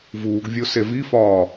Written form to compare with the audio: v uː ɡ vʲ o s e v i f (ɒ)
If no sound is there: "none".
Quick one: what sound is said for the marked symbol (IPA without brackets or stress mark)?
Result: ɒː